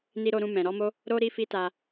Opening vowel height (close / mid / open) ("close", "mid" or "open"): close